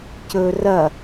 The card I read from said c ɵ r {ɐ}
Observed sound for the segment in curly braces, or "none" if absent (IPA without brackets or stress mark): ɐ